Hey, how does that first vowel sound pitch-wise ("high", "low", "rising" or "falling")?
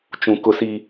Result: low